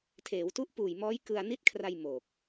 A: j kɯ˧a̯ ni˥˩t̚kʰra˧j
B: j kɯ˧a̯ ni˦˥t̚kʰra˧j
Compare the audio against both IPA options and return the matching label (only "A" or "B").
B